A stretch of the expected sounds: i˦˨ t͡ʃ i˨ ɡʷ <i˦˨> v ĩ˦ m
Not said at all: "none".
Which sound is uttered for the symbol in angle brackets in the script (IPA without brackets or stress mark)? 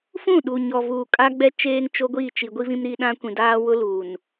i˦